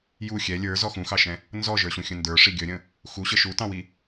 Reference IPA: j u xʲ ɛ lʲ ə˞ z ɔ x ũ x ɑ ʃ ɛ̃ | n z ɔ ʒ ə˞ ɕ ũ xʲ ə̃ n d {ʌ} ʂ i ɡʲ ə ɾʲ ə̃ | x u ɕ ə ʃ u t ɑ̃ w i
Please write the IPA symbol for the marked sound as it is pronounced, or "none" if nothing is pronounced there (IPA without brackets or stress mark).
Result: ə˞